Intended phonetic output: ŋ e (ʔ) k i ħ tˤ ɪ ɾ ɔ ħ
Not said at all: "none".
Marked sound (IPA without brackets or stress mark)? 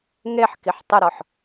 ħ